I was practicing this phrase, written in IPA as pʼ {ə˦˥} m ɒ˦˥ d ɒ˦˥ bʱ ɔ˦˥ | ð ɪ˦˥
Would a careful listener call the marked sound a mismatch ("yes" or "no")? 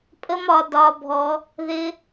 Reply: no